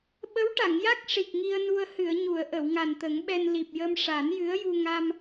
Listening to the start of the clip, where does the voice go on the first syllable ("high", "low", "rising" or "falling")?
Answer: rising